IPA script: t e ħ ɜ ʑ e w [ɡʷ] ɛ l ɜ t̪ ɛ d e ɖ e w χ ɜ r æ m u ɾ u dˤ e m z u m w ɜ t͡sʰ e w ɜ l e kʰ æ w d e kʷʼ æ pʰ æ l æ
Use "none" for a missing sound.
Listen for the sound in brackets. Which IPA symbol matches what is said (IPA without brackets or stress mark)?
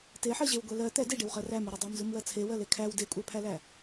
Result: ɡʷ